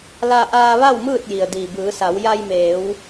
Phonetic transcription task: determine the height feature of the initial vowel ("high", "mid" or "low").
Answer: low